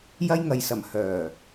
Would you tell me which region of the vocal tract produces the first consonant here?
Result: palate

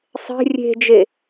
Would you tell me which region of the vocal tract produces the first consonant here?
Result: tongue tip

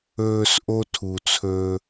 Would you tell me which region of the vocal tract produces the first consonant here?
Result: tongue tip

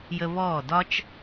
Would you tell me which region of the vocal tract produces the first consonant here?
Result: palate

